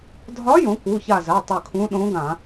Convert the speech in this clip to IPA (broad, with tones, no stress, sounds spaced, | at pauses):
dʱ ɒ˧˥ j õ˩˧ k u˩˧˩ ç a˧˩ z a˩˧˩ tˤ ø˧˩ kʰ ũ˧˥ ɗ õ˧˥ ɡ ã˧˩˧